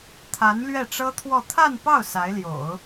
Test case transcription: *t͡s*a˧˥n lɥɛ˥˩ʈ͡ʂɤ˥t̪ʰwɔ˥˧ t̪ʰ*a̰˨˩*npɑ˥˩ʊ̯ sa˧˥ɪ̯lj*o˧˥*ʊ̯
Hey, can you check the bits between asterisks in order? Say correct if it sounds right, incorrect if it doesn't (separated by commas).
incorrect, incorrect, incorrect